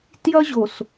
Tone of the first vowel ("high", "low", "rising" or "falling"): high